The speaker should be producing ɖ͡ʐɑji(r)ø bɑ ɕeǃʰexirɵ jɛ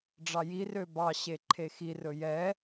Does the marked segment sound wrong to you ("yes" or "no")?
no